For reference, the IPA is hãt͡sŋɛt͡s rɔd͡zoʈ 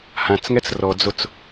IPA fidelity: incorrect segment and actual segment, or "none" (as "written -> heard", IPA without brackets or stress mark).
ʈ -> t͡s